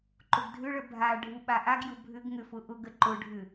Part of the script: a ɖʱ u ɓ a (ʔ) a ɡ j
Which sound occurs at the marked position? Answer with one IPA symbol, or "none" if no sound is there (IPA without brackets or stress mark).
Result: ʔ